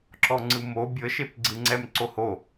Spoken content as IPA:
ǁɔŋ͡ǀɯmo bʲɤʃepɡ͡ǀɯ ŋ͡ǀɛmǀoho

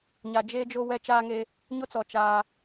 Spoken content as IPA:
ɲa˨d͡ʒe˦d͡ʒo˦ wɛ˦ t͡ʃaː˦ŋe˦ | ɲʊ˦t͡sɔ˨ t͡ʃaː˦

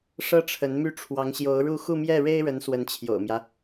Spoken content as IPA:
ʂɤ˥ʈ͡ʂʰə˧˥nmy˥˩ ʈ͡ʂʰwɑ˧˥ŋɕjo˧˥ʊ̯ɻu˥˧ xu˥˧mjɛ˥˩ ɻe˥ɪ̯ɻə˧˥n swə˧˥nt͡ɕʰjo̰˨˩ʊ̯mjä˦

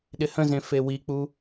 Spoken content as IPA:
ɗɪhə̃zẽ fewik͡pu

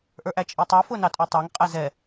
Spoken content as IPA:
ʔə˞ʔæt͡ʃʼitˤæ fʊnɑtʼutˤæŋ qʼɛzɛ

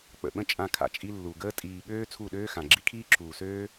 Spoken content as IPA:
k͡pə̰˨ɓə̃˦ t͡ʃʼã˧kʰa̰˨ t͡ʃʼi˧lːu˨ ɡəː˦ tʼiː˨ɠøː˧ t͡sʰu˦˨ɗøː˦xã˨ɡ͡ǁi˦ kʰiː˦ǁʰuː˨søː˦

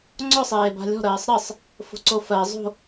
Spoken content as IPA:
ŋ͡ǀɔ sˤeːba̤lʲɔ̤ ɾɜːsˤɾɜsˤ | fo̤ǀofɜ zˤo̤

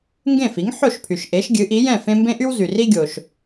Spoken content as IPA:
ŋɡẽ˥˩fi˩˥ŋ ħo˥˩ʃpʰy˩ʃ ʔe˩˥ʃɡʲɨ˩˥ʔi˩˥jɛ̃˥˩ fẽ˥ mbẽ˥ʔy˥wzy˩ ri˥ɡʲo˩ʃ

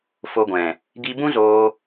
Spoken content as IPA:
fo˧ɡʷɛ̃˨ | ɡi˧ bũ˦zoː˧

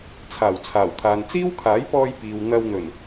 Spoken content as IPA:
t͡sʰaː˨˩wt͡sʰaː˨˩wt̪ʰaː˨n t͡siː˥wkʰaː˨˥jpɔː˧j piː˨w n̪ɐ˧wn̪ɵ˨˩n

